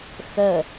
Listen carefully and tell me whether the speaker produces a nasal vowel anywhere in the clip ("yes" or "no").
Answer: no